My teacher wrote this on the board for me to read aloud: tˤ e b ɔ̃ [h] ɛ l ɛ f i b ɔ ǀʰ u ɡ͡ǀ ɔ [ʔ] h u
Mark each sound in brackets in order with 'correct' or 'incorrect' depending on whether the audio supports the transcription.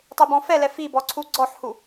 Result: incorrect: f, incorrect: ħ

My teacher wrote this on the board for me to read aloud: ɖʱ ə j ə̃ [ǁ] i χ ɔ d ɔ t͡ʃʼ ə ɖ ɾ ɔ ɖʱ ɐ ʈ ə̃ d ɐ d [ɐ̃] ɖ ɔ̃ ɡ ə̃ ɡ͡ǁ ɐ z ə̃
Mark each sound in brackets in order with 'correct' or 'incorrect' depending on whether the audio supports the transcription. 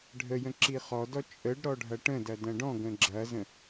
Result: correct, correct

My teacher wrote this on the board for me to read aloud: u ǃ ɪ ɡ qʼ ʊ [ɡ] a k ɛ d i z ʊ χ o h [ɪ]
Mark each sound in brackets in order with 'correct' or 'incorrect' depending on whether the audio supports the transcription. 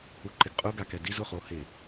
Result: correct, correct

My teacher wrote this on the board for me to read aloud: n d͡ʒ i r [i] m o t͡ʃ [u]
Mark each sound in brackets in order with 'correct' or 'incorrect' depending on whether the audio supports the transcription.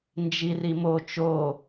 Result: correct, incorrect: o

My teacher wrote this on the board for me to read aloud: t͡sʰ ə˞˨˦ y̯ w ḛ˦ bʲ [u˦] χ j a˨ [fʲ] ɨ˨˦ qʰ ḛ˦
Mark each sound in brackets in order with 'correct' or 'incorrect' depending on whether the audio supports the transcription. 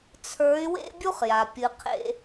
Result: correct, incorrect: pʲ

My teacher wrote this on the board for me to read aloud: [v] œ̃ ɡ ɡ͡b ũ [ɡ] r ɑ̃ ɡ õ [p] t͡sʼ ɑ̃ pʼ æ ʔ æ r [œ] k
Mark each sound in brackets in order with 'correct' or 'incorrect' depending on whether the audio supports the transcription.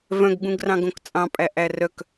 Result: correct, correct, incorrect: k, correct

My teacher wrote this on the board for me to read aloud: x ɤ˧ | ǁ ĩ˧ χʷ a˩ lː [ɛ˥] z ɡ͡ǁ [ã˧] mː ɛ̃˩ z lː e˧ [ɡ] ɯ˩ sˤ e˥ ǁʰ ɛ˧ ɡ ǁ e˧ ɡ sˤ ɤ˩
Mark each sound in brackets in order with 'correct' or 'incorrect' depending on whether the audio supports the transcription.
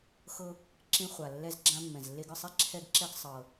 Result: incorrect: ɛ˧, correct, correct

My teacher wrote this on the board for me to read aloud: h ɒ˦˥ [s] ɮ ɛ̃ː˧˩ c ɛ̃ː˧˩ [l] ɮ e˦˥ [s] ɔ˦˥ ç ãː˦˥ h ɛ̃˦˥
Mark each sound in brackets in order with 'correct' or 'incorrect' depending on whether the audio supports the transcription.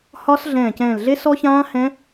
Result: correct, correct, correct

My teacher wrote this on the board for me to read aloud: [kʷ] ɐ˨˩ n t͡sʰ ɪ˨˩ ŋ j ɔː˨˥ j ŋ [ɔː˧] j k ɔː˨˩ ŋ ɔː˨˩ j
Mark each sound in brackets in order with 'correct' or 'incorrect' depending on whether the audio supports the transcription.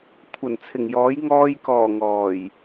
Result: incorrect: kʷʰ, correct

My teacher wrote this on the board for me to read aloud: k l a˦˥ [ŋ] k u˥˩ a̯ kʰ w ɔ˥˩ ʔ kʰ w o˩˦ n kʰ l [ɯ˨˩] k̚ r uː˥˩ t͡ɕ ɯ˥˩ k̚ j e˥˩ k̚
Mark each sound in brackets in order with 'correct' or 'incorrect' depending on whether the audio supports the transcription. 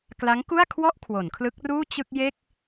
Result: correct, incorrect: ɯ˦˥

